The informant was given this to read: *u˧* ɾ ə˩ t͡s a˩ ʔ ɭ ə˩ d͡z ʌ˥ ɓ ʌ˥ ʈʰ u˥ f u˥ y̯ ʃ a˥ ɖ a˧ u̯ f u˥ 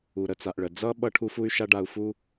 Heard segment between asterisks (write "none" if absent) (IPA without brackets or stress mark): u˩